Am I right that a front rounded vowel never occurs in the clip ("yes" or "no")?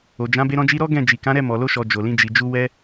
yes